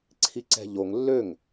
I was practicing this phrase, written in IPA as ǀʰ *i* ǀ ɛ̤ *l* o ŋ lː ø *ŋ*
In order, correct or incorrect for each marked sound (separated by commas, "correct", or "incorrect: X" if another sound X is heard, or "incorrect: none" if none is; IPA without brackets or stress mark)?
correct, incorrect: ʎ, correct